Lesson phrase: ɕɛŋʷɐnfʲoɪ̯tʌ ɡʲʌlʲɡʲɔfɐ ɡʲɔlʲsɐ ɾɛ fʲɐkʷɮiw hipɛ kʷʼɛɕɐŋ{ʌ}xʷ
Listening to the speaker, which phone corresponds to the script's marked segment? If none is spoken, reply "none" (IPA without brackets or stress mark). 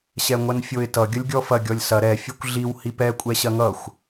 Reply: ʌ